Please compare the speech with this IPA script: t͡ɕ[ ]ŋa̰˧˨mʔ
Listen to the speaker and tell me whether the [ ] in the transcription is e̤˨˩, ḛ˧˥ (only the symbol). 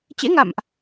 ḛ˧˥